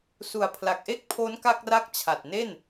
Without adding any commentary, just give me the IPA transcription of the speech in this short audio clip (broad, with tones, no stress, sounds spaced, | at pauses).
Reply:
s u˨˩ a̯ pʰ l a˨˩ k̚ ʔ e˥˩ k̚ pʰ o˦˥ n k a˥˩ k̚ r a˥˩ k̚ t͡ɕʰ a˨˩ t̚ n e˥˩ n